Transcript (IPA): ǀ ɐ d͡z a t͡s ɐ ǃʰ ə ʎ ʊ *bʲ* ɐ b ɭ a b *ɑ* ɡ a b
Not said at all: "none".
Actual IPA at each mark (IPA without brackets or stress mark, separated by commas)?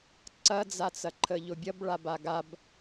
bʲ, a